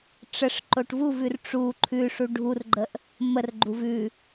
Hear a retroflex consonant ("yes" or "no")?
yes